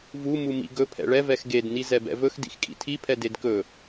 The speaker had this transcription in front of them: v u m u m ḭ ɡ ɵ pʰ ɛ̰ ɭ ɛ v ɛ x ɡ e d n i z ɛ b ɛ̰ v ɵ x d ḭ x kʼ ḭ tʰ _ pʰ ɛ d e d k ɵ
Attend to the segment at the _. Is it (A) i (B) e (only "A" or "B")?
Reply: A